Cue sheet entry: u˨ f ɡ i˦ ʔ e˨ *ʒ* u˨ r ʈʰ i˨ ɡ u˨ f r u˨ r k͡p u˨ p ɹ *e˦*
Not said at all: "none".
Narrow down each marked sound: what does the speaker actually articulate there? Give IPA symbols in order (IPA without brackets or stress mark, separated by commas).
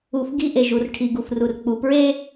ʒ, e˦